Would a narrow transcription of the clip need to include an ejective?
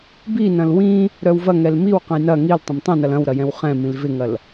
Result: no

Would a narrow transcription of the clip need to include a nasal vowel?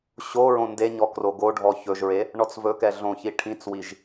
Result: yes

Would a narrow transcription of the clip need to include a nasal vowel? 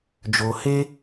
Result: no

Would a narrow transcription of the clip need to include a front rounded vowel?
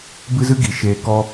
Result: no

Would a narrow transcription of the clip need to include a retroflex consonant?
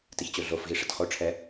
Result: yes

